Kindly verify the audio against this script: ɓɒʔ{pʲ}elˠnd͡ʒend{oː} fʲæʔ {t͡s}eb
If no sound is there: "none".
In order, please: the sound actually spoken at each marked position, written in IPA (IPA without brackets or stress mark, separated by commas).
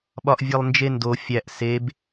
vʲ, o, s